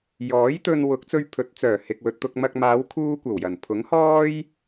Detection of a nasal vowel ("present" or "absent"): absent